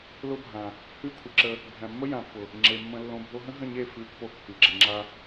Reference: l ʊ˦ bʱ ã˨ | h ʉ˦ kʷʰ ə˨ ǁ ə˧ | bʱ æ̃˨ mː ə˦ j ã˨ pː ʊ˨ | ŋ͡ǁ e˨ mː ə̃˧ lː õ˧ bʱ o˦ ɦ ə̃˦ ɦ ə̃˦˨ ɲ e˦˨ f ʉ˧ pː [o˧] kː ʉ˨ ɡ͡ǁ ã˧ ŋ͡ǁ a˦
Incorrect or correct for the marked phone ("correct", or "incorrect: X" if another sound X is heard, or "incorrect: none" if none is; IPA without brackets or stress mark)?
correct